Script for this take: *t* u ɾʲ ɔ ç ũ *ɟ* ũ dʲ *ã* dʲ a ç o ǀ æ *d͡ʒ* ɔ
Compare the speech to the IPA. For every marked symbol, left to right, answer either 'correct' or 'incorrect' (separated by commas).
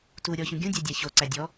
correct, incorrect, incorrect, incorrect